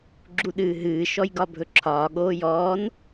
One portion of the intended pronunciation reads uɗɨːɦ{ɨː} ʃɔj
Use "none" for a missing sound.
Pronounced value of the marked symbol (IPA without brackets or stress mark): ɨː